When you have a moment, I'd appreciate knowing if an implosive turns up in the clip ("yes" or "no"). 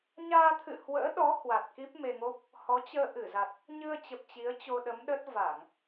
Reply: yes